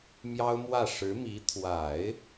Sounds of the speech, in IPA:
mjɑ˥ʊ̯mwä˥˩ ʂɻ̩˧˥mi˧˥ t̪ʰwa˨˩˦ɪ̯

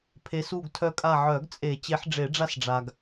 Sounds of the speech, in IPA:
pʰe˨˦su˦˨ɡtʰœ˦˨kʼa˦˨ ʕœ˨˩˦ɡt͡sʼe˨˩˦ t͡ɕe˨˦ħɖ͡ʐe˨˩˦ɖ͡ʐa˦sɖ͡ʐa˨ɡ

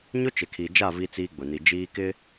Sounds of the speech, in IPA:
ɲʊ˦ t͡ʃɪ˨kʰi˨d͡ʒa˦˨ vi˦t͡siː˦ɡ͡bʊ˨ni˨ d͡ʒiː˦kɪ˦

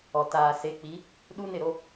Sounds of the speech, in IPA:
ɔ˨ taː˨se˨˦k͡pi˨˦ | ɗu˦nɪ˦˨ɾo˦

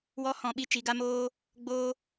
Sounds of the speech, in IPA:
wɔ˦ hɔ̃˦˨ɓi˦ t͡ʃi˨˦ɡa˦moː˦ | ɡ͡boː˦

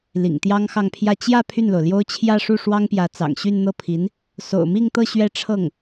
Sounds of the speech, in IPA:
lḭ˨˩ŋt̪jɑ˥ŋxɑ˥˧ŋpʰjä˥˧ t͡ɕjä˥˧ pʰy˥˩nlo˩ʊ̯ljo˥ʊ̯ t͡ɕʰjä˥˧ʂu˥˩ ʂwɑ˥ŋpjä˧˥ t͡sɑ̰˨˩ŋɕy˥˧nn̪ɤ˥˩pʰi˧˥n | so̰˨˩ʊ̯mi˥˧ŋt̪ɤ˥˧ ɕɥɛ˥˧ʈ͡ʂʰɤ˥˩ŋ

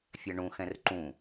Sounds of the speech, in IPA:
fʲaɳũxɛ̃r ǃũ

